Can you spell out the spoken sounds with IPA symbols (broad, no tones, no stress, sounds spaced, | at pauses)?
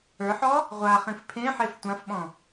ə˞ ħ ɔ | ʁʷ a χ ĩ f pʰ ẽ ħ e f tʷ ã f ɓ ɔ̃